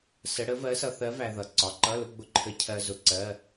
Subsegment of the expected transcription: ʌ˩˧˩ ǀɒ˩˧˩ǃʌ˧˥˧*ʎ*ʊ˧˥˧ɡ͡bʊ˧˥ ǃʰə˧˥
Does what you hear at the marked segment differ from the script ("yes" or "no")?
yes